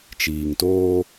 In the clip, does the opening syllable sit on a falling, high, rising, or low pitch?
low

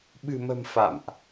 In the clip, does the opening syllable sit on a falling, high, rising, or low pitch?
low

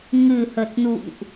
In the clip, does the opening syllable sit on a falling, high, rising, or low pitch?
low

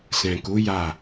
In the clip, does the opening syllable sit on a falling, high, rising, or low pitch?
low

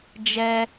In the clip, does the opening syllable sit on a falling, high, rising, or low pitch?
high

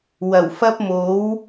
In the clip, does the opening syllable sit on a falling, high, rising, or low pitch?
low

